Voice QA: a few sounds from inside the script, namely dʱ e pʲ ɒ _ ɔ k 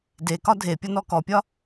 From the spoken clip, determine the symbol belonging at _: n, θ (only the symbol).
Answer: n